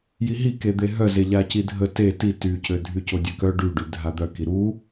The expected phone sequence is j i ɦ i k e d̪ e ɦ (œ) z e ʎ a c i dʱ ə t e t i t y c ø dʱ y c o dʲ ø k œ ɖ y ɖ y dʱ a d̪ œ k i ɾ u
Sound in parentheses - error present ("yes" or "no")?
no